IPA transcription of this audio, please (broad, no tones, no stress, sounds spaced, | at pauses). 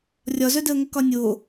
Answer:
rʲ ɒ z œ d əː ŋ ə k ɒ nʲ o